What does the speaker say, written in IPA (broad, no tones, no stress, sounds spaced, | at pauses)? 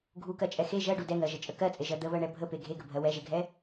ɡʱ u k ɜ t͡ʃʼ ɛ x e ʒ ɜ ɖ u d ɛ ŋ ɜ ʒ ə t͡ʃʼ ə k ɜ t͡sʼ e ʒ ɜ d̪ ə β ɜ ɳ ɛ bʱ ə p e ɡʱ e ɡ ə bʱ ɜ w ɛ ʒ e ɡʱ ɛ